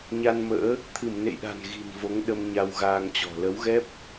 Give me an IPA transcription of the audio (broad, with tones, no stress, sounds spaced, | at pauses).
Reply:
ɲ a˧ n m ə̰ː˧˥ | t̪ʰ ɨ˧˩ m n ḛ˧˨ j ɗ a̤˨˩ n ɣ i̤˨˩ n v o˨˦ ŋ ɗ ə˧ m ɲ a˧ w ɣ aː˧ ŋ t͡ɕ ɔ̤˨˩ l ə˨˦ w ɣ ɛ˦˥ p̚